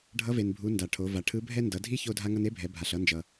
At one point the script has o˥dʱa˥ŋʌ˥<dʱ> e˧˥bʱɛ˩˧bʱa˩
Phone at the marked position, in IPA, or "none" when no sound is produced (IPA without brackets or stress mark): n